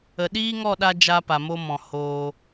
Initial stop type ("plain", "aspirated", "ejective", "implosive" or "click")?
implosive